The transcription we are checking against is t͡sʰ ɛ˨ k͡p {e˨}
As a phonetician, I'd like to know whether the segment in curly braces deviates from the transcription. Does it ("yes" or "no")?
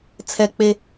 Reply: no